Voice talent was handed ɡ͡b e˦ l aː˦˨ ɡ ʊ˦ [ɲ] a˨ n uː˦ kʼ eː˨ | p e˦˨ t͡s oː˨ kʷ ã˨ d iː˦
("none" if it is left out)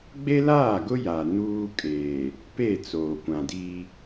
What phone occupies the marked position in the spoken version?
j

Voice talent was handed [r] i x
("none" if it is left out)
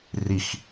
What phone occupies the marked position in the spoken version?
r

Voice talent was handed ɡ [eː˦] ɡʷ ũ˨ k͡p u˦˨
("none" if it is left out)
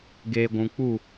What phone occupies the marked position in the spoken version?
eː˨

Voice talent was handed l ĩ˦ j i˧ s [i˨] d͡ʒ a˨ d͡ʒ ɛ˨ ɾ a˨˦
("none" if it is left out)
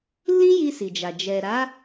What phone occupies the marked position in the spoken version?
i˨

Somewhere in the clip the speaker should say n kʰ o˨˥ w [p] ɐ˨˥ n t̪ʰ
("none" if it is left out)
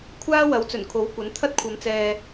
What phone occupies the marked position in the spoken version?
kʷ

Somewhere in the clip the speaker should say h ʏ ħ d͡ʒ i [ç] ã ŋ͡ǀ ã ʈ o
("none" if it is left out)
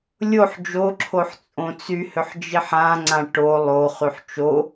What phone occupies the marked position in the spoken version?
ħ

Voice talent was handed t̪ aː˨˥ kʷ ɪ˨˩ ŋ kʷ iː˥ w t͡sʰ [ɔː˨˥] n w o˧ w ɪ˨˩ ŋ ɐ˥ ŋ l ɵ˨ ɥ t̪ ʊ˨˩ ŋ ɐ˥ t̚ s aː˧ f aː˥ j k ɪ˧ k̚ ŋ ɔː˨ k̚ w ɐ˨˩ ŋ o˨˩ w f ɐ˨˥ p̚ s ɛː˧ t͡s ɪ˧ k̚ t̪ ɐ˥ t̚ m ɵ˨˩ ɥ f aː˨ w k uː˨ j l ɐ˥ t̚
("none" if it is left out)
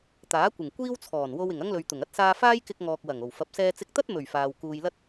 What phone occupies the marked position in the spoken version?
ɔː˨˩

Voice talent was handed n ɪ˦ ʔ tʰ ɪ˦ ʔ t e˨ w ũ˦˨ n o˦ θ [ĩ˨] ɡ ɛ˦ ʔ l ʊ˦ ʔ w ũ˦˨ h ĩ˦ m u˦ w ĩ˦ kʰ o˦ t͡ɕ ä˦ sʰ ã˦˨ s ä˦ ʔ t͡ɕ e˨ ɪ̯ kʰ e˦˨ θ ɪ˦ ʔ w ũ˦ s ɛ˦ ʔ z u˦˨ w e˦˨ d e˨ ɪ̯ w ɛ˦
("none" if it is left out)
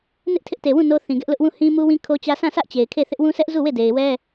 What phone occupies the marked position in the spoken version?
ĩ˨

